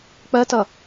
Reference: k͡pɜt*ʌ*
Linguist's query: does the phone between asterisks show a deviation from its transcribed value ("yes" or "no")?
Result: no